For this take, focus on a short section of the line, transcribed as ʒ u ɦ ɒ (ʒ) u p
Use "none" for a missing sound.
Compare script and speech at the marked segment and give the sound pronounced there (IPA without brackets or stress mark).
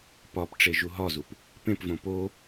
z